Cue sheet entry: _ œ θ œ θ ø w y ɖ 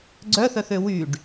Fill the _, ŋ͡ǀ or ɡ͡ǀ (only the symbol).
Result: ɡ͡ǀ